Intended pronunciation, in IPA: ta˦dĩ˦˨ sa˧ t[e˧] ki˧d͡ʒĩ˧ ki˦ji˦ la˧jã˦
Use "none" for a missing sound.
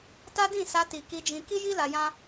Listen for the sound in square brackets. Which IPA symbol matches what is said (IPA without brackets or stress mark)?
i˧